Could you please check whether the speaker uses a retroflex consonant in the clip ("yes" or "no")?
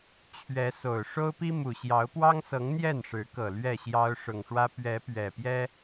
yes